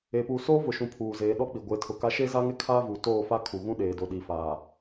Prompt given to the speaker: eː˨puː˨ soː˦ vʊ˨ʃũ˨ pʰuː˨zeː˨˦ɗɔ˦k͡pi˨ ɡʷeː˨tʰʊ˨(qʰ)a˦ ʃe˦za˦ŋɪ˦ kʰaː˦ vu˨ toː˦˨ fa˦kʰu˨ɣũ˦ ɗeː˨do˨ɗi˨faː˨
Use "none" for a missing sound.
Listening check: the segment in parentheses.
k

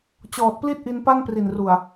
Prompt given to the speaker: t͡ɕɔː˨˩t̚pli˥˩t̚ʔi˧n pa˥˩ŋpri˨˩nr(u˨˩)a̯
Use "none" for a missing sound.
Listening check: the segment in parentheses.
u˨˩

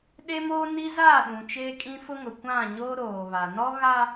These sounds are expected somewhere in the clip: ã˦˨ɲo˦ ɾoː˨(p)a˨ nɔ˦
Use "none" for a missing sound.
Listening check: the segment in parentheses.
β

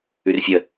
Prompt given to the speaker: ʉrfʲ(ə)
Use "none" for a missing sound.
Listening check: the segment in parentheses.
ə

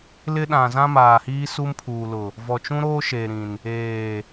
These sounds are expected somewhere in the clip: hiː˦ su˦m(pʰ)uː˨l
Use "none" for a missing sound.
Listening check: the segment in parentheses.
pʰ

